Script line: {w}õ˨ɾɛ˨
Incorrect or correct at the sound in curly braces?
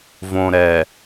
incorrect: v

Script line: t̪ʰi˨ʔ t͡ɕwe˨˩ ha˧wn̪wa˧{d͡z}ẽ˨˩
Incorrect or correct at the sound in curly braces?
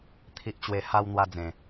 correct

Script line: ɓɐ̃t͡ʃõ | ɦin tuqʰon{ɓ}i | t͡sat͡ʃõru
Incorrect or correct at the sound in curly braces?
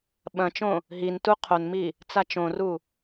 incorrect: m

